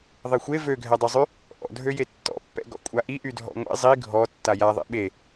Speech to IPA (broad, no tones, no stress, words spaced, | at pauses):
ðˤexʷe vøɡʱɛdˤyzˤy | ʔɔ̰dʱøje tːɔ̰pːɛ̰ ɡɔ̰kʷʼaʔi ʔydʱɔ̰ŋʷḛ zˤi ɡʱɔ tːajaðˤḛ ɓe